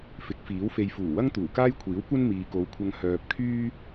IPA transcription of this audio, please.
f ɪ˨˥ k̚ f iː˨˥ w f e˨ j f uː˨˩ w ɐ˥ ŋ t̪ uː˨˩ k aː˥ j kʷʰ iː˨˥ w kʷ ɐ˥ n m iː˨ k o˨˧ w kʷʰ ɐ˧ ŋ h œː˨ p̚ kʰ yː˥

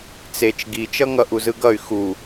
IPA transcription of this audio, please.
t͡s e t͡ʃ ɡ i t͡ʃ ʌ ŋ ʌ ʔ u z ɯ ɡ ʌ y̯ x u

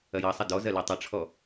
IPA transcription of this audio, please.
ɐ j ɑ sˤ ɐ d ɔ z ɐ l e tˤ ɐ ʈ͡ʂʰ ɔ

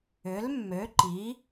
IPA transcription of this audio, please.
ʏ˨˥ l mː ø˨˥ ǃ i˨˥

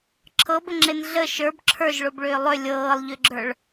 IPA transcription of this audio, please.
ǁʰ ɤ b ə ŋ͡ǁ e n ɮ ə ʃ ə˞ b ǁʰ ə˞ ʒ ɭ o b ɭ ʏː lˠ ʏ lʲ ɤː lˠ ʎ ʏ ɡ͡ǁ ə˞ ɭ

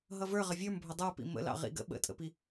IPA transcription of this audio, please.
ɦ ʌ v ə˞ ʁ ə vʲ ə˞ m bʱ ʊ dˤ ə˞ p ḭ m ə̰ l ɑ̰ ʁ ḭ ɡ ə̰ ɓ ə̰ tʼ ə̰ p i

